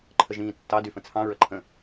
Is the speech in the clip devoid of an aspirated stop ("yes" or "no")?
no